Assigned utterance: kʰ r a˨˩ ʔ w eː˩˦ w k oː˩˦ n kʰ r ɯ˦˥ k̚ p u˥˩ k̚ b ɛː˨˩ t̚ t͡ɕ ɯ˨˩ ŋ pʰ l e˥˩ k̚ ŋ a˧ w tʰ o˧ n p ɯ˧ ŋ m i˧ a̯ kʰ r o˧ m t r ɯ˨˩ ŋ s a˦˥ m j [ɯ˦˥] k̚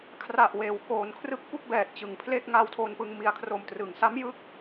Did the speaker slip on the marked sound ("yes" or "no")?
no